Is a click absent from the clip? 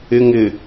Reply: yes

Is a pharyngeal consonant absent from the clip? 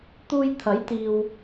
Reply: yes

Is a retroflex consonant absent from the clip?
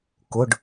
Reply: no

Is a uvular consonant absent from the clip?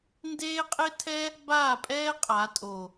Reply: no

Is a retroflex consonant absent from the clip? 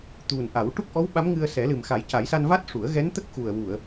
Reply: no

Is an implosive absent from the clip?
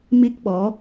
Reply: no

